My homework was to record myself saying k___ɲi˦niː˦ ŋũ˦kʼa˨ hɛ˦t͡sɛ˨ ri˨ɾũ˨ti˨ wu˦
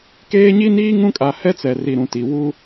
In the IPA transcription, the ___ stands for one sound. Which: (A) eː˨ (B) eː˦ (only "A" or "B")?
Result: B